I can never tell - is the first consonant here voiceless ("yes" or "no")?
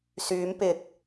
yes